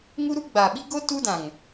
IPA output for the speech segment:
ŋ u˦ ɾ u˦ ɡ͡b aː˨ ɓ i˦ ɡ oː˦ t u˦ d ã˨ ŋ

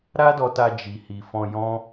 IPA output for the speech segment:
ɾ a˦ d ɔ˧ t a˧ d͡ʒ i˧ h i˧ f ɔ̃˧ j ɔ̃˦

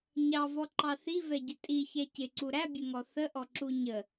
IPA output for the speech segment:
ɲ ɑ v ɔ ǃ ɑ θ i v ɛ ɟ ə tʼ i ç ɛ c ɪ ǀ u ɾ æ bʲ ə ŋ ɔ θ ə ʔ ɔ ǁ u ɲ ə

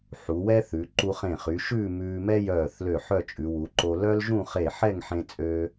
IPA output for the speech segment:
ħ u˩˧ w ɛ˥ θ ʉ˩˧ ǃ u˧ χ ẽ˧˩ χ y˩˧ ʃ ʉː˥˧ m ʉː˧ m ɛ˥ j œː˧˩ θ l ø˧˩ ħ œ˥˧ t͡ʃʼ ʉ˩˧ w u˩˧ ǃ o˧ l œ˥ l ʒ ũ˥˧ χ e˧˩ ħ ɛ˥˧ ŋ ħ ẽ˧ t͡sʼ ø˧

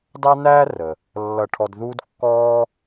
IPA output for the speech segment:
d ɑ˥ n æː˥ r ə˩ | lː ʌ˧ ʈʰ ɔ˧ d ð uː˥ d kː ɔː˥

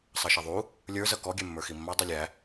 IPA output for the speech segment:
sˤ ʌ ʃ ʌ ðˤ u | lʲ ə˞ z ʌ k ɔ ɡʲ ɛ mː ə˞ x i mː ɑ dˤ i lʲ æ

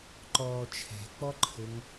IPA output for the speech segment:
ǃ ɔː t͡ʃʰ ɛ̤ k͡p ɔ ǃʰ ɘ ŋ

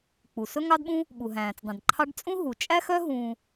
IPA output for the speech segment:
k͡p u˩ s ɵ˦ ŋ ɑ˦ d ɓ ũ˦ | ɓ u˩ ɦ æ̃ː˩ t͡s dˤ ɛ̃˩ d ǃʰ ɑ˦ ɖ t͡sʼ ũ˥ ɦ u˩ t͡ʃʼ æ˥ x œ˥ ɦ ũ˨

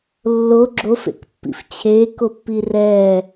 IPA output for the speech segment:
lː o ɡ͡ǁ o f ḛ k pː ḭ f t͡ɕʰ e k o pː i r ɛ

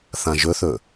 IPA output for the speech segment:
θ ã ʒ ɵ θ ɵ

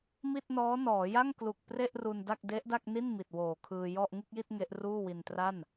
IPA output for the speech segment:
m i˥˩ t̚ n ɔː˦˥ n ɔː˩˦ j a˥˩ ŋ k l u˨˩ k̚ p r e˥˩ ʔ r u˧ n d a˥˩ k̚ d e˦˥ ʔ d a˥˩ k̚ n i˥˩ n m i˨˩ t̚ w oː˨˩ kʰ ɯː˧ j ɔ˥˩ ʔ ŋ ɯ˥˩ k̚ j i˥˩ t̚ ŋ e˦˥ ʔ r uː˥˩ w i˧ n t r a˥˩ n

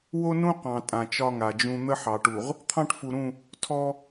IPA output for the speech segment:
w o˦ n ũ˦ q ɑ̃˨ tʼ ã˨ t͡ʃ ɒ˦ ŋ a˨ d͡ʒ ũ˦ n̪ ə˦ ħ ɑ˨ ʈ u˨ ʁ | t̪ʰ ɑ̃˦ ʈ f u˨ ɾ ũ˦˨ | tʰ ɔ˦

